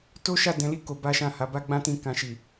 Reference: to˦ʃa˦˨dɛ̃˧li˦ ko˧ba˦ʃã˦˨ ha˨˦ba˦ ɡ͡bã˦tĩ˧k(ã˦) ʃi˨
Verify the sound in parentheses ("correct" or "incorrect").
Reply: incorrect